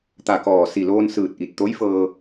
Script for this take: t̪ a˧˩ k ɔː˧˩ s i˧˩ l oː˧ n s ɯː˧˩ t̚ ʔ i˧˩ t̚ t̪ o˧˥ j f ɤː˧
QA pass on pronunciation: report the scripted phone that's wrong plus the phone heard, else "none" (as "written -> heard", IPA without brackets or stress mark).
none